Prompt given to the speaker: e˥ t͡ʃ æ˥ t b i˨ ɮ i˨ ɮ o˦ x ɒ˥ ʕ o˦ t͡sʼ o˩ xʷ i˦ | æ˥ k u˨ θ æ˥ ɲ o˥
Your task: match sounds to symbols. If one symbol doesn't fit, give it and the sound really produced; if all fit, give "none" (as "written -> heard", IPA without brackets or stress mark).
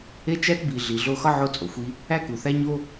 none